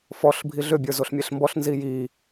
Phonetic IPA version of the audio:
f ɔ ɬ bʱ i ɮ ʏ bʲ ə˞ z o ɬ mʲ e ɬ m b ɔ ɬ n z i j i

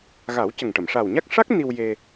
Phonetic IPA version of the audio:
ɣ a˨˩˦ w c ə˨˩ ŋ ʈ ə˨˩˨ m ʂ a˨˩ w ɲ a˦˥ k̚ ʂ a˦˥ k̚ n i˧ w j e˧

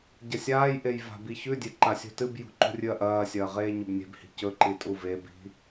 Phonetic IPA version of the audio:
ɟ ɐ sʲ aː j ʔ e j v a̤ b i ç ʉ dʲ e ǃ a sʲ ṳ t ɨ b j ṳ ǃ ṳ rʲ ɨ ɐ̯ ʔ ɐː sʲ ɐː ʁ eː ɲ ɵ b nʲ e̤ b h i̤ c ɵ ǃ i tʼ u v e b i̤

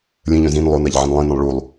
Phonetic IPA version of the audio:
lʲ ə̃ ʎ œ̃ z ĩ n lˠ o n a ʎ ʕ ə̃ n lˠ ĩ n ə̃ lˠ ɭ u lˠ

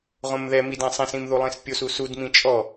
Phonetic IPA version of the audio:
ʁ õ m ð ɛ m i d ã sˤ ĩ s ĩ m ð u lˠ ĩ s pʲ o s u s u d m ĩ t͡ʃʼ ɔ

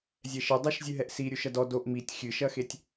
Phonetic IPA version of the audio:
zʲ ɛ ʃ ɘ dˤ ɐ ʃ zʲ ɨ ɦ ɛ ʔ s i ɾʲ u ʃ ɐ d ɔ d o ʔ m i tʲ xʲ ɨ ʃ ɐ x e tʲ

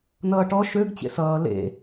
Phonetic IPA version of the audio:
n ʌː ʈ ɔ ʃ ø ɡ t͡ɕ ḛ s ʌː l ḛ

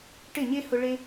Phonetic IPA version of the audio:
ʈ ɪ˦˨ ɲ e˦ h ʊ˧ ɭ e˦

